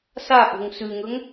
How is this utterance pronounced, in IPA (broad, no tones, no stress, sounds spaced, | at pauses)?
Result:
s a ʔ o̤ ŋ s ʉ ŋ ɵ ŋ